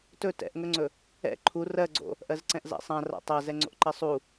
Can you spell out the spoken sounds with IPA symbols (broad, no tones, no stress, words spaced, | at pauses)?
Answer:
tɵ tɛ̰ʔŋɵŋ͡ǀɵ | ɛ̰ ǃʰu rɜɡ͡ǀo̰ | ʔɜzǀɛ̃ʔza̰sˤã ra̰tˤa zɛŋ͡ǀo̰ʔǃɜsˤu